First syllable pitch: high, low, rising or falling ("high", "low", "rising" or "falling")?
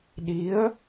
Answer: rising